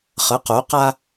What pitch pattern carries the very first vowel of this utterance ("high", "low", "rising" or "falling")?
rising